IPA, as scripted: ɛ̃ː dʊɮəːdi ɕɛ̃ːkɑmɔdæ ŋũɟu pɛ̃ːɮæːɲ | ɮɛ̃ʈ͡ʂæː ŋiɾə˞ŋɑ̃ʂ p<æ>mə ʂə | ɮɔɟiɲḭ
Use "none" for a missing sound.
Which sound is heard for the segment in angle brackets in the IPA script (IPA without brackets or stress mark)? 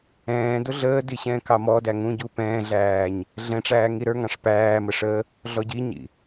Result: æː